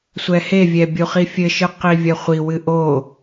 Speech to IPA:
sʷ ɛ h e vʲ ɛ bʲ u χ i fʲ ɘ ʃ ɨ q i vʲ ɐ χʷ i w ɨ ʔ o

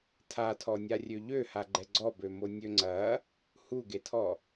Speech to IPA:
tʰ a tʰ ɔ nʲ a rʲ ø ʎ ø h a ɡ͡ǃ ɛ ɡ͡ǀ ɔ b ø m o nʲ ø ŋ͡ǀ ɐ | h u ɡ e tʰ ɔ

